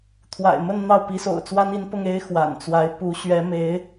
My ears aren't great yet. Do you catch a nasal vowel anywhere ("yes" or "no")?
no